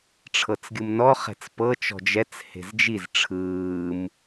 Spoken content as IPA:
ʈ͡ʂʰ ɤ t͡s ɡʲ ɯ m n ɔ χ ɛ̤ t͡s p ɤ t͡ʃ ɔ̤ d͡ʒ ɛ t͡s h e̤ z d͡ʒ i z ʈ͡ʂʰ ɯː m

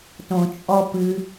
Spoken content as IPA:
t õ t͡ʃʼ ɔ p ɨ

